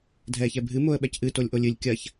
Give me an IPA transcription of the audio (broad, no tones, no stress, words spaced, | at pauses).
dʱɛːçɛbʱɨ moə̯ɓɛcʔɨ tolʲʔolʲɨlʲ kʲɐç